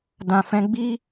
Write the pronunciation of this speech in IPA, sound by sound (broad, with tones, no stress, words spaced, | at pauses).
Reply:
dã˨fɛ̃˧ ɡ͡bi˦